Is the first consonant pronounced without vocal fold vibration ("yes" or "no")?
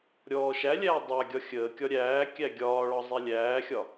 no